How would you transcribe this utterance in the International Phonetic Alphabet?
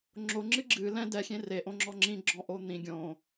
ŋ͡ǁoŋ͡ǁɨ ɡ͡ǁɨ lɛ̃ dɛxʲẽ reʔõŋ͡ǁɔ ŋ͡ǁĩɡ͡ǁɔ̃ʔo n̪ĩ ɡʲõ

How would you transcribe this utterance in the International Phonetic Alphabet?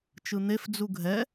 t͡ʃɯn̪ef d͡zuɡʱɛ

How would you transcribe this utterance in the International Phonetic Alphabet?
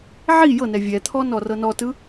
ʕi jɤnɛ vʲɛt̪ʰɔ nɔrɤnɔtɯ

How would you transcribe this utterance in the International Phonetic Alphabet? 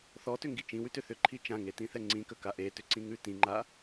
θɔtʏŋɡi t͡ʃĩwʉtʏ θʏǃʰi t͡ʃãŋetĩθɛ ŋ͡ǀĩkəka ʔetʏǀĩŋʉ tĩŋ͡ǃa

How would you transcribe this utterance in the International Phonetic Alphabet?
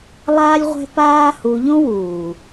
lˠaː˦lʲ ʁʷɛ̤˦paː˦hu˧ ʎõ˦wuː˨

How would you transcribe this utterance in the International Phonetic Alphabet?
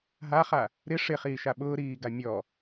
ɦaχa | ɾɪ ʂɪχiːʃa ɓʊːɾiːɡa mʲɔ

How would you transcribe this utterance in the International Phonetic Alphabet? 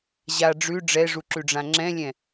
ʑa ɖ͡ʐʉ ɖ͡ʐɛʐuǁʉɖ͡ʐã ŋ͡ǁɛ̃lʲɛ̃

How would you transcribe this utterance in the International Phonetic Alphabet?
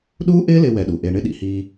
ɗuː˥ʔɪː˥lɪ˧ wɛ˧ɗu˩ʔe˧ ɳɪ˥ɗḭ˩hiː˧

